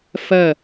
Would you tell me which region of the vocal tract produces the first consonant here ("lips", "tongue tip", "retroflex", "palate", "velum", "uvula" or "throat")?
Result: lips